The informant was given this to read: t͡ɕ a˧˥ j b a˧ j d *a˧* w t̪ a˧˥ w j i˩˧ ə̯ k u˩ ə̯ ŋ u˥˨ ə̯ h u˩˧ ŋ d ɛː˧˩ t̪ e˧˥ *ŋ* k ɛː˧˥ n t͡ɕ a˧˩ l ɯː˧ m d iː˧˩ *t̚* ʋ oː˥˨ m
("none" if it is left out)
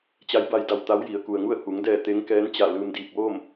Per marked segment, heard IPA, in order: a˧˩, ŋ, k̚

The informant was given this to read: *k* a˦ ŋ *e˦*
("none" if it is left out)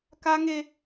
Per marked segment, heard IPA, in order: k, e˦

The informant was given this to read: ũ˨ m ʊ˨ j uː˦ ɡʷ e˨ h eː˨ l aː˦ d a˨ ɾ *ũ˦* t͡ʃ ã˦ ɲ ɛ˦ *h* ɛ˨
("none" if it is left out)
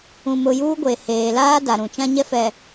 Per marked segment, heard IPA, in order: ũ˨, f

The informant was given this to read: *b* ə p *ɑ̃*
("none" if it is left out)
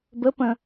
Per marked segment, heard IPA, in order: b, ə̃

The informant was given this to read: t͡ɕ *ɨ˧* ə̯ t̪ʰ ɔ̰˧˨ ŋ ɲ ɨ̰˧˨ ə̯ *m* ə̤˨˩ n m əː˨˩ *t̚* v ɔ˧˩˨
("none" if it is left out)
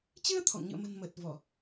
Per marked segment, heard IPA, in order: ɨ˧, m, t̚

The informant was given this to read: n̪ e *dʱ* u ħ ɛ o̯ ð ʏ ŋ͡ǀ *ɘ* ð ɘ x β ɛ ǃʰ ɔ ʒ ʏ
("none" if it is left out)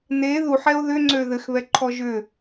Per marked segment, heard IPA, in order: ð, ø

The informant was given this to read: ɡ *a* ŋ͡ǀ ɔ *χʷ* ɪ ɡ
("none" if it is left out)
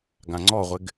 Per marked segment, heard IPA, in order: ã, ʁʷ

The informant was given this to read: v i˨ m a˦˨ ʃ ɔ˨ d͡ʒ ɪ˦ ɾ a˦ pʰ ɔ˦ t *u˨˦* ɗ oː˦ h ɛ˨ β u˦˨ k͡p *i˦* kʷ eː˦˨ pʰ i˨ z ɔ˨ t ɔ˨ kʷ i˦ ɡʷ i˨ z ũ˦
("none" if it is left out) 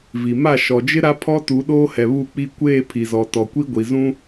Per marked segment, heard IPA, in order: u˨˦, i˦

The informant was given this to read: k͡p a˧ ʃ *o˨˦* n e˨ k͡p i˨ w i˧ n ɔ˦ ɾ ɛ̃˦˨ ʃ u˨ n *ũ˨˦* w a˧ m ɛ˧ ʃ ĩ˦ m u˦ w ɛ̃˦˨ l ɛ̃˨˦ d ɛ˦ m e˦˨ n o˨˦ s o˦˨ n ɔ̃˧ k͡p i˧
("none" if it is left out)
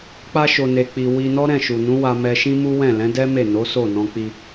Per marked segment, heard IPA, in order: o˨, ũ˨˦

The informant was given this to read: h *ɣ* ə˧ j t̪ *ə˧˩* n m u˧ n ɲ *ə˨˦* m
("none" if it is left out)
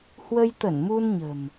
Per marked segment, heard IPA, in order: w, ə˧˩, ə̤˨˩

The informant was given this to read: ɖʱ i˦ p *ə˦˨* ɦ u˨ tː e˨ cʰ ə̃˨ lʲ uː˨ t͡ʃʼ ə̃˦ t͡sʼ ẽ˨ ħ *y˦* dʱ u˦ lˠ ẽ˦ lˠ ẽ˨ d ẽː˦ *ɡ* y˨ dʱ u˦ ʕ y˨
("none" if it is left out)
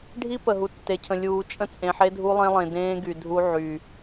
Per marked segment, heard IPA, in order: ə˨, e˦, ɡ

